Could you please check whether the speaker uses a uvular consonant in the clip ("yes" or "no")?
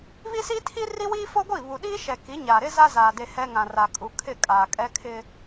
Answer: no